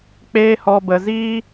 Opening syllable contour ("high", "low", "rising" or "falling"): high